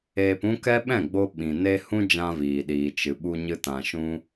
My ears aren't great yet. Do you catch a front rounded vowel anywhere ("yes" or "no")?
no